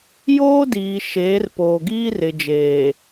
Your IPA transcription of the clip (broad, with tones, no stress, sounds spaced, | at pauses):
j oː˦ d iː˨ ʃ eː˨˦ r p oː˨ ɡ iː˦ r ɪ˨ d͡ʒ eː˨